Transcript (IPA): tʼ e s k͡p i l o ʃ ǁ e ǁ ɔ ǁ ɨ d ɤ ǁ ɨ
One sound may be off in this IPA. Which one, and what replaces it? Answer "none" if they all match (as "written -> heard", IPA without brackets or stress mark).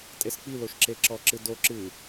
ɤ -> o